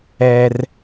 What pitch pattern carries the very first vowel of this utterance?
low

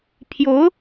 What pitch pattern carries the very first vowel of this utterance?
rising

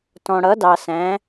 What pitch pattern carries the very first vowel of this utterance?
low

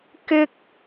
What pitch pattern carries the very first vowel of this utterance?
high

